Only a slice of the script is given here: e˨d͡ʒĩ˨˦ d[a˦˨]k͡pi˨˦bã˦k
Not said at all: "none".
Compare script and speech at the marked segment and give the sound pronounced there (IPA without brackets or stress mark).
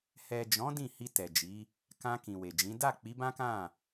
a˦˨